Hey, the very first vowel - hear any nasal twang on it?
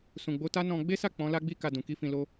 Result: yes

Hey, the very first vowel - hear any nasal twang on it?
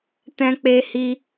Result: yes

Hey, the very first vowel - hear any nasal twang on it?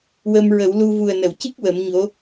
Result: no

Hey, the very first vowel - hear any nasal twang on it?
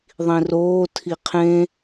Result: yes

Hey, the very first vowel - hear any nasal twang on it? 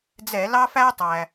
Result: no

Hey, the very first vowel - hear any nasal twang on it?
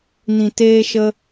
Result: yes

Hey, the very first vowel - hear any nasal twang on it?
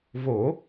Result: no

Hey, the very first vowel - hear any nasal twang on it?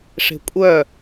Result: no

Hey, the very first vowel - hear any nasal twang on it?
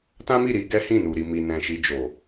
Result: yes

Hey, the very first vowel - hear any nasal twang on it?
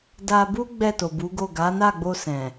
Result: no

